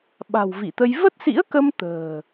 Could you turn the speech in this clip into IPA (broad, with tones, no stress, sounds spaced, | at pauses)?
ɓ a̤˨˩ w v i˧˩ t̪ ə˧ j v ə˦˥ t̚ s ḭ˧˥ ə̯ k ə˧ m t̪ ə̤ː˨˩